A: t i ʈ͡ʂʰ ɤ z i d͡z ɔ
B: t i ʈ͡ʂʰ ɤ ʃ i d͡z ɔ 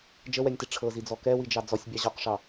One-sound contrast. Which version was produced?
A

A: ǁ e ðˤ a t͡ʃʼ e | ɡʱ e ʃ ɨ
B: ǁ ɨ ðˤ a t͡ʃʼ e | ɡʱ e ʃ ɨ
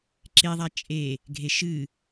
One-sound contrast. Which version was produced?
A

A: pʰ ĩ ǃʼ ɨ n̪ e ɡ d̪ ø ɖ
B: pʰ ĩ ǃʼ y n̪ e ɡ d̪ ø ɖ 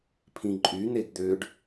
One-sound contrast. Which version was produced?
B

